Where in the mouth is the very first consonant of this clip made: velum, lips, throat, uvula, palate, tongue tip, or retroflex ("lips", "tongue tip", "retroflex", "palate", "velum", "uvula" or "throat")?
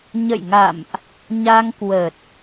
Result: palate